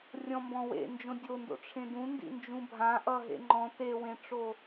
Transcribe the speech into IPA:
rʲ ɔ̃ m b ɔ̃ w ḛ n d͡ʒ õ dʲ o n d o̰ ʈ͡ʂʰ ẽ d ũ n d ḭ n d͡ʒ ũ bʱ ã ʔ ʌ ɦ ḛ ŋ͡ǃ ɔ̃ t e w ẽ ʈ͡ʂ o

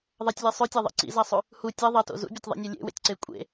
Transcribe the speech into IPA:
ðˤ ɐ tʲ lʲ e sˤ ʉ tʲ a ðˤ ḛ ǀ ḭ z a sˤ ʉ | h u tʲ e ðˤ ɐ t o̰ z ṵ bʲ e tʲ ðˤ ḭ nʲ o lʲ ḛ w ḛ tʲ ǀ e kʷʼ ḛ

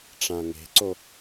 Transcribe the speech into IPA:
ʈ͡ʂ ã ŋ e̤ ǀ o

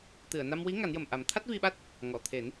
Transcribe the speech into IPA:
t̪ ɨ˨˩˨ ə̯ n a˧ m w i˧˥ ŋ a˨˩˦ n j ə˨˩ m ʔ a˨˩˦ m t̪ʰ a˦˥ t̚ v i˧ ɓ a˦˥ t̚ | ŋ ɔ˨˩˨ t̪ʰ e˨˩˦ n

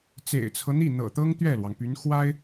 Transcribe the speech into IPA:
t͡s ḛ˨˩ ɪ̯ t͡sʰ ɤ˦ n̪ i˥˩ n̪ ɤ̰˨˩ t̪ ɤ˥ ŋ t̪ ɥ ɛ˥˩ l w ɑ˩ ŋ p y˧˥ n x w a˥ ɪ̯

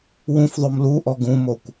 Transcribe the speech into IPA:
w ũ f ðˤ o m l u ʔ ɔ ɡ ũ m o kʷ

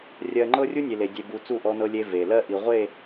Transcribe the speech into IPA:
rʲ ɜ˨ ŋ͡ǃ ɤ˦ rʲ u˦ nʲ e˨ l e˨ dʲ e˨ b u˨ t͡s u˦˨ ʔ ɔ˦ n ɤ˦ lʲ e˦ v e˨ l ɜ˦ ʔ i˨ ʁʷ e˦˨

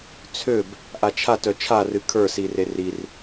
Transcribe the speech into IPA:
t͡sʰ ø b | ʔ a t͡ʃʰ a t œ t͡ʃʰ a r ɨ kʰ ə˞ s i r e r i r

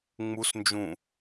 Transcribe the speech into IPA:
ŋ͡m u s n d͡ʒ ũ

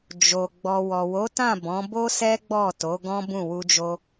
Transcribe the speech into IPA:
d͡ʒ o˨ ɡ͡b ɔ˨ w ɔ˨ w o˨˦ t ã˦˨ b ɔ̃˨˦ b o˦ s ɛ˦ ɡ͡b ɔ˦˨ t o˨˦ ɡ ɔ̃˦ b ũ˦˨ w u˧ d͡ʒ o˧

